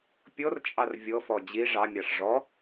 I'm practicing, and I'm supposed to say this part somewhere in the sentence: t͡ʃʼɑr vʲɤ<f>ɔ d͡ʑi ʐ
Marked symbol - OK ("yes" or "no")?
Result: yes